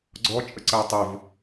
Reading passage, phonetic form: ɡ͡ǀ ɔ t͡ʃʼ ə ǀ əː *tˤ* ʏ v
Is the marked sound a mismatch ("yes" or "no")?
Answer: no